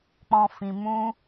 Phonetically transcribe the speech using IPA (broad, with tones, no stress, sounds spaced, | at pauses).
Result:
k͡p ɔ̃˧ f ĩ˧ m ũ˦